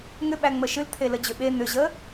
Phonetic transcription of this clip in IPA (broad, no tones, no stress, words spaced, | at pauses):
ŋʏ ɓæŋ͡məʃɨl t̪ʰeləd͡ʑʏɓe n̪ʏʑə